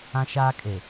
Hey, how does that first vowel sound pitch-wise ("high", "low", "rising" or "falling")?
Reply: high